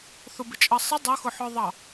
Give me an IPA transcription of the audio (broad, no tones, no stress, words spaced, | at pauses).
θʊbɪt͡ʃʼʌsˤɪ dˤʌxʊħɔðˤɑ